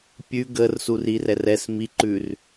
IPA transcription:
pʲ ʉ ɡ ə r s u r i r ɛ r ɛ s m i ǃ ʉ r

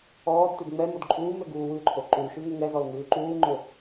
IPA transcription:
ɔː d t ʉ d ŋ͡m ɛ m o d ǃʼ uː m ø ɡ uː w ʉ ǃʰ o ǃ u ʃ ʉ ŋ ø ŋ ɛ z ɔ l ŋ ʉː ǃ uː ŋ͡ǃ ø

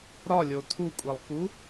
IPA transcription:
ɾ ɒ lʲ o tʰ u kʷʼ i lˠ k u

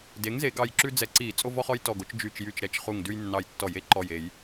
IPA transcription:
d e˩˥ ŋ z e˧˩˧ ɡ ɑ˧˩ j ǁ ʉ˦ d͡z ɛ˧˩˧ ǀ i˧˩˧ t͡sʼ o˦ v ɔ˦ χ ɔ˦ j t ɔ˧˩ ɡ o˩˥ t͡ʃ d͡ʒ y˧˩ t͡ʃ j y˧˩ t͡ʃ ɾ ɛ˧˩ t͡ʃ χ u˧˩ ŋ d ʉ˦ j nː ɑ˧˩ j tː ɔ˧˩˧ j e˦ ǃ ɔ˧˩ j e˧˩˧ j

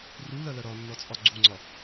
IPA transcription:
r u l ɐ l ɐ ɾ ɒ nː ɔ t͡sʼ ɒ ɡ͡ǀ u ŋ͡ǀ ɒ

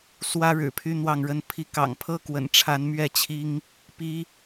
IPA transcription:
s w ä˦ ɻ ɻ̩˨˩ pʰ y˦ n̪ w ɑ˥˨ ŋ ɻ ə˥˨ n pʰ i˨˦ k ɑ̰˨˩ ŋ pʰ ɤ˦ k w ə̰˨˩ n ʈ͡ʂʰ a˨˦ n m ɥ ɛ˥˨ t͡ɕʰ i˦ ŋ | p i˦

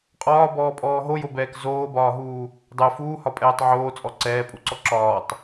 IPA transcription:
qʼ ɒː b ɔː pʼ ɔː ɦ o j o b ɛː k z oː b ɒː ɦ uː | dˤ ɛ f uː h ɒ pʼ ɛː tˤ ʕ oː t͡sʼ ɔ ǀ ɛː pʼ u ǀ ɔ ǁ ɒː tˤ

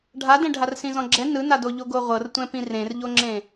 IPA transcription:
ɖʱ a d ɛ̃ ɖʱ a r s ĩ z ɔ̃ ɡ͡ǁ ɛ n ɯ n a d o ʎ o ɡ o ʁʷ ɤ r tʷ ɛ̃ p ĩ r ẽ r ʎ o ŋ͡ǁ ẽ

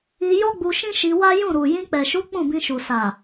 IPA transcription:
i˧ j ɔ˦ ɡ͡b u˧ ʃ ĩ˦ ʃ i˧ w a˦ j ũ˦˨ ɾ u˨ j ĩ˧ k͡p ɛ˨ ʃ u˨˦ k͡p ũ˦˨ b ĩ˧ ʃ u˨ s a˨

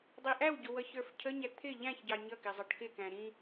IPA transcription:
dˤ i ʔ æ w ɟ ʊ w ʌ ç ə˞ f cʰ ə ɲ æ t̪ʰ ɪ ʎ æ̃ ç ɟ ɑ ɲ ʌ k ɪ zˤ ɑ ʈ k ɪ k æ̃ ɾ ĩ

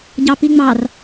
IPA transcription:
ɟ ɑ p i ŋ͡m ɑ r

